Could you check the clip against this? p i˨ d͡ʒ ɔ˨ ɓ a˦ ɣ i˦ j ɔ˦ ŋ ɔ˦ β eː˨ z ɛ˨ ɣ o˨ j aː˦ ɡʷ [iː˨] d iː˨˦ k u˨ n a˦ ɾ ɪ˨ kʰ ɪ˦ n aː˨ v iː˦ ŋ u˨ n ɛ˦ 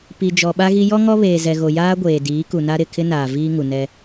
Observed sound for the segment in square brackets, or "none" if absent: eː˨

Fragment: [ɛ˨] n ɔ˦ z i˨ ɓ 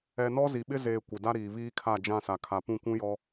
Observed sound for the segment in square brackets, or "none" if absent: ɛ˨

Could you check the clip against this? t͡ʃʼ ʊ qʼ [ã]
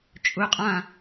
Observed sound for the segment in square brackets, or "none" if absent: ã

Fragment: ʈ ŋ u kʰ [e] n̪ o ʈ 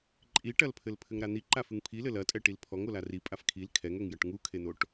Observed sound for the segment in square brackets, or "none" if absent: e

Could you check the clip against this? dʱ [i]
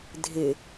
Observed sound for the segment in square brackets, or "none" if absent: ɪ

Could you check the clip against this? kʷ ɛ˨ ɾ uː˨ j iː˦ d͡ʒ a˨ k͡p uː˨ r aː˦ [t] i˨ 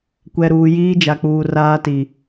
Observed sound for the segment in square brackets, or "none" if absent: t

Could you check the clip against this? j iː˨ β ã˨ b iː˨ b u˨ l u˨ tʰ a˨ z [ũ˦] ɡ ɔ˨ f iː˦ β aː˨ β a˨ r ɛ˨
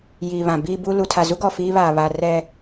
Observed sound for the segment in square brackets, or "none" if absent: u˦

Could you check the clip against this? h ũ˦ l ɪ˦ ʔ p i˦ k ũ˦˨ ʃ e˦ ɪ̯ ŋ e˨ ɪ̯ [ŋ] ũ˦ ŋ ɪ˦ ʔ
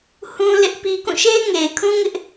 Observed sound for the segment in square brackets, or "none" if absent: kʰ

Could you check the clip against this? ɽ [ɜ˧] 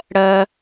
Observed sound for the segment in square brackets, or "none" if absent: ɜ˧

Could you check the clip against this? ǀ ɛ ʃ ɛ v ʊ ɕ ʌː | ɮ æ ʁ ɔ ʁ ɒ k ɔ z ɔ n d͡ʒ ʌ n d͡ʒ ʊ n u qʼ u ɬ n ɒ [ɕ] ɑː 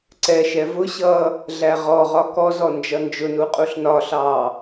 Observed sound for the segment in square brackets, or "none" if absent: ɬ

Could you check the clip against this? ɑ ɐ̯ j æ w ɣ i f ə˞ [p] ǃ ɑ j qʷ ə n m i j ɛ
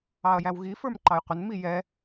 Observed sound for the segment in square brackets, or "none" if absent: m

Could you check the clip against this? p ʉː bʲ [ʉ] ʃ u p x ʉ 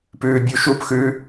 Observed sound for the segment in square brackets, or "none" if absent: u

